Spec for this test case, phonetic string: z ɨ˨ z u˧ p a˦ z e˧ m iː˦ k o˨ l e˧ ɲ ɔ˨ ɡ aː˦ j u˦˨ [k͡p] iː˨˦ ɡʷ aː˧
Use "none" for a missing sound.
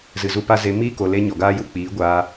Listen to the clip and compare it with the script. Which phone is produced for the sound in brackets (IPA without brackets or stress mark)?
k͡p